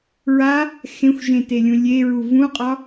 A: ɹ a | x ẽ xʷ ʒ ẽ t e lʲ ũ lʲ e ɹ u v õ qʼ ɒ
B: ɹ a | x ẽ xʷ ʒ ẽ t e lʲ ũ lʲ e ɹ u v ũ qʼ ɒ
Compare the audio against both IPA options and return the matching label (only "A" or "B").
B